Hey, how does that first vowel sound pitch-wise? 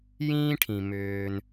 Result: high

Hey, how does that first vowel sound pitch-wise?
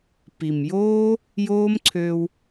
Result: low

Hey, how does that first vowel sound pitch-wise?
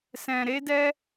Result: low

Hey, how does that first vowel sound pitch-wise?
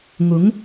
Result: rising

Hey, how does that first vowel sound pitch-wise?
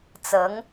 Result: rising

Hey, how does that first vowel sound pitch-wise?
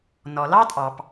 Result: low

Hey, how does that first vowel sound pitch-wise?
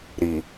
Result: low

